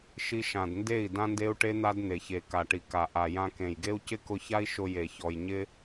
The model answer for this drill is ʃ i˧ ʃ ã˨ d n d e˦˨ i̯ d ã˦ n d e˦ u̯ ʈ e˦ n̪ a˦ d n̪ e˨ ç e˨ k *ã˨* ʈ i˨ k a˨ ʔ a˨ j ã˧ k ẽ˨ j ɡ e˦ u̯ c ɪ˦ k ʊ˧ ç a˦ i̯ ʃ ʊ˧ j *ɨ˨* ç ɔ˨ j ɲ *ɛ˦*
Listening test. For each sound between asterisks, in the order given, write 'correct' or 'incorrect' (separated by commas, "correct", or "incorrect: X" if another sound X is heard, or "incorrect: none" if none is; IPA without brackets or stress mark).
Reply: incorrect: a˨, incorrect: e˨, incorrect: ɪ˦